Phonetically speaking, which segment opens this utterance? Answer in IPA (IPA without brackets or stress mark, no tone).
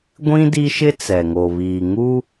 ɡʷ